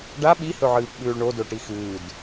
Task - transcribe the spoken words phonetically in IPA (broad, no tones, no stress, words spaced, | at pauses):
ɖa ɓihɵʕɨːpɓʉːɭ ɳodoʈi xʉːd